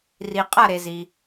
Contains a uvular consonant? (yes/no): yes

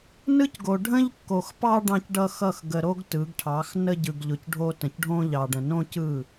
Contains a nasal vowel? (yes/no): yes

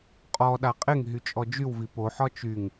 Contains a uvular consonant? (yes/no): yes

